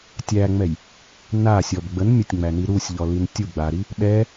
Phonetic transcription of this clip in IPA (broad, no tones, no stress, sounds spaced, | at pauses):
tʲ æ ŋ͡m ɛ j | n a sʲ ɔ b ɡ͡b ə n mʲ ə tʲ ŋ͡m æ n i ɾ u sʲ ʎ ɔ l i n tʲ u ɡ͡b a ɾ i | ɗ ɛ